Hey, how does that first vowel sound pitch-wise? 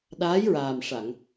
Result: rising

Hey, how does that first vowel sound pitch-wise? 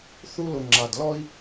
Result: high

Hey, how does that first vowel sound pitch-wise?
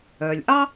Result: low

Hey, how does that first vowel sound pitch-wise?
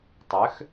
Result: rising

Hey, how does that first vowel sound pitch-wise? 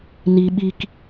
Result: low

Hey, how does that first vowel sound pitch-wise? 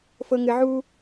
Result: low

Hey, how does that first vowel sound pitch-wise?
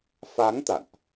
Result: rising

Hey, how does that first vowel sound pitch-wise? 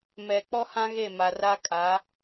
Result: low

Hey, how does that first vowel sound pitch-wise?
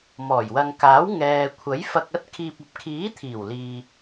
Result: low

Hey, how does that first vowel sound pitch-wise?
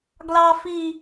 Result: high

